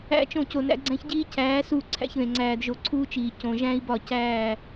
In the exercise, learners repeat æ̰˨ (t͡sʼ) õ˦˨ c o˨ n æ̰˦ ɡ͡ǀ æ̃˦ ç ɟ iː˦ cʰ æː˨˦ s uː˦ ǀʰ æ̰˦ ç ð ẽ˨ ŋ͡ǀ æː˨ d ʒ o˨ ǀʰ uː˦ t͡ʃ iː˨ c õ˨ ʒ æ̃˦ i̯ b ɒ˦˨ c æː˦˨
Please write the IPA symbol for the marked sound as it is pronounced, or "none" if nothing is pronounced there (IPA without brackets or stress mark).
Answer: t͡ʃ